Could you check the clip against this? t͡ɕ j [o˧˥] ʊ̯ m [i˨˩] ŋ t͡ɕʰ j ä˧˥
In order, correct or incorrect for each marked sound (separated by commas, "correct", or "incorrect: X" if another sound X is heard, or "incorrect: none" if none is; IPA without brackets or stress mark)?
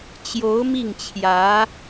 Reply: correct, incorrect: i˥˩